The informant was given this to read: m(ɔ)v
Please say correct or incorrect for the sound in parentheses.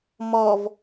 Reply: correct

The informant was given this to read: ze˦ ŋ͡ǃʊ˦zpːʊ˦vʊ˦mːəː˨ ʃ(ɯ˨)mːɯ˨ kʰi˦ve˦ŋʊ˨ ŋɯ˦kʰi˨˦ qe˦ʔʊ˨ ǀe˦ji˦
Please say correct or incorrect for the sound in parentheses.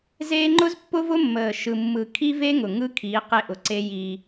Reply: correct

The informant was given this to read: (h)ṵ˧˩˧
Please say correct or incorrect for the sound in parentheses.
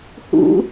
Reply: correct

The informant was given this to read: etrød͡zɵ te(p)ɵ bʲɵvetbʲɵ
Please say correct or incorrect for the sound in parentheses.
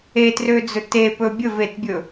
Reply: correct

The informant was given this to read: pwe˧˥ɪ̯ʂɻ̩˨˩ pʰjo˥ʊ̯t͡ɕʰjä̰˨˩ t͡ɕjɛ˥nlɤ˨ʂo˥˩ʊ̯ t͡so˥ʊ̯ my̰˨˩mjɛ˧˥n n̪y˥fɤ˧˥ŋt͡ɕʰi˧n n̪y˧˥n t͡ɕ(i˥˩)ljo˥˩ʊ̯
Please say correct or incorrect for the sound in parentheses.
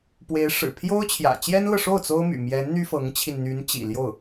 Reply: incorrect: ḭ˨˩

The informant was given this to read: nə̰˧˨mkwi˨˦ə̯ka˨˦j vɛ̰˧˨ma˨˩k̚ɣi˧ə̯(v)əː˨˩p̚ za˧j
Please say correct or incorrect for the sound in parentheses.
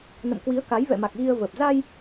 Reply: correct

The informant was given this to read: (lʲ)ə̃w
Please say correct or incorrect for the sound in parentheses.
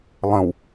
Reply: incorrect: lˠ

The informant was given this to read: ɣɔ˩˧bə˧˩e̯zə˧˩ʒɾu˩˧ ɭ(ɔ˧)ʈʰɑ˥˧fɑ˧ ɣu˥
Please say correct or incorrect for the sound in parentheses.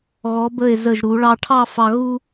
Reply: incorrect: ɑ˧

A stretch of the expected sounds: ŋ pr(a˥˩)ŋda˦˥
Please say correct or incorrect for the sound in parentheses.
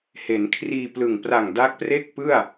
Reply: incorrect: a˨˩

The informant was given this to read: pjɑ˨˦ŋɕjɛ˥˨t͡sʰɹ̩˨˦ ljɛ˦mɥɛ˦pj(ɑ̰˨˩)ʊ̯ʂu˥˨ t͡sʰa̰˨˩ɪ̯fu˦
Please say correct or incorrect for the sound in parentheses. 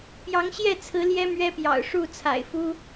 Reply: correct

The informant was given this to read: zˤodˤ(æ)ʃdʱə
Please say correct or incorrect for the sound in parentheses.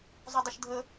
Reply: incorrect: ə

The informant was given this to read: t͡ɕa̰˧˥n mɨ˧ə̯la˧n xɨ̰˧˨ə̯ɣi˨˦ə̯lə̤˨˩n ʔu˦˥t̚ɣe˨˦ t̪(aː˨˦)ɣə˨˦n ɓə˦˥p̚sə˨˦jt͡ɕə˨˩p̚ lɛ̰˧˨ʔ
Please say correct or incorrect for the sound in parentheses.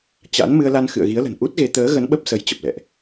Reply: incorrect: əː˨˦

